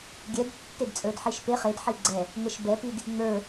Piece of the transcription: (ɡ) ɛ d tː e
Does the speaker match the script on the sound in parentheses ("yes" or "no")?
no